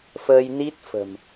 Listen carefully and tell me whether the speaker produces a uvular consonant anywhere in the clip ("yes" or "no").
no